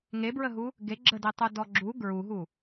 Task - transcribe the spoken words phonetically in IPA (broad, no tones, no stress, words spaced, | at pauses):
ŋebɹəɦu | ɡe ɡ͡ǁəditˤudɔ ɡ͡ǁu ɡɹuɦu